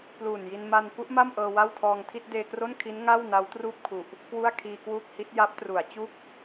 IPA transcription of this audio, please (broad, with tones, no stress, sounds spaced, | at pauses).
p l uː˨˩ n j i˧ n m a˧ n p u˦˥ ʔ m a˥˩ m ʔ ɤː˧ w a˥˩ w tʰ ɔː˧ ŋ tʰ i˥˩ t̚ d eː˧ k r o˥˩ n kʰ i˦˥ n ŋ a˥˩ w n a˦˥ w t r uː˥˩ p̚ kʰ u˨˩ ʔ | k w u˥˩ a̯ kʰ iː˧ k w uː˥˩ k̚ h i˦˥ t̚ j a˦˥ p̚ t r u˩˦ a̯ t͡ɕ u˥˩ k̚